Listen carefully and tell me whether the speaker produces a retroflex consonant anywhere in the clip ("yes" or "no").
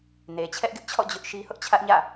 no